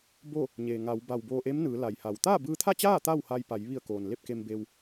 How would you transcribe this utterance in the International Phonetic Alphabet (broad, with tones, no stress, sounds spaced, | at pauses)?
b o˥˨ | ɲ eː˩ ŋ a˩˧ w b a˧˩ w b oː˧ ʔ e˧˥ m n ɯː˩˧ l a˩ j h a˩ w t̪ aː˥˨ b ɯː˧ t̪ʰ a˥˨ t͡ɕ aː˥˨ t̪ a˥˨ w h a˧ j p a˩˧ j ʋ i˧˩ ə̯ k oː˩ n l e˥˨ p̚ k e˧ m b e˧ w